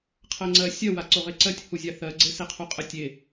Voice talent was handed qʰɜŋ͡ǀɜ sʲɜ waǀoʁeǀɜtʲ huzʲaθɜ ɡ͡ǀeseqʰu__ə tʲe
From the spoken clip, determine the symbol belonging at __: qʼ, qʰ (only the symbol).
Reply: qʼ